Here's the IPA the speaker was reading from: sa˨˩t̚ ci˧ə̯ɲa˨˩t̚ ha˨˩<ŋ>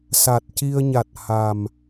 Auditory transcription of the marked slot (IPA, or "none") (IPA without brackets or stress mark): m